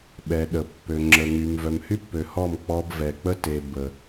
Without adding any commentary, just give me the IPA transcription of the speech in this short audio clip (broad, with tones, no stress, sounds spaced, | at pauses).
ɓ ɛ˨ ɗ ə˨ pː ø˨ ŋ͡ǁ ə˨ ŋ y˨ m v œ˨ m h y˦ pː ø˨ h ɔ˦˨ m k͡p ɔ˦ b v ɛ˨ k͡p ə˦ t e˨ b ə˨